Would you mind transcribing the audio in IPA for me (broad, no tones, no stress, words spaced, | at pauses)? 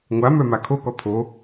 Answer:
ŋʷamœ makʰokɔ t̪ʰo